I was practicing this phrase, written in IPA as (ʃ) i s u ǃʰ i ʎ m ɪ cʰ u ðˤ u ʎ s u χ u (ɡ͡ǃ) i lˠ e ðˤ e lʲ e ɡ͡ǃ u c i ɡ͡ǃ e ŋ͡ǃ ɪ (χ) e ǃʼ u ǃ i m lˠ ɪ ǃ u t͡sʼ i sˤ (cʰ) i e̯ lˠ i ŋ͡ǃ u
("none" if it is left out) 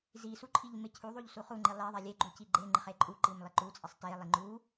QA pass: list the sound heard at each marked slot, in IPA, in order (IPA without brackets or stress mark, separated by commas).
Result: z, ŋ͡ǃ, χ, t